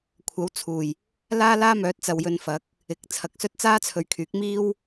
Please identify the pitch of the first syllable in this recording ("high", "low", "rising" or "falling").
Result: rising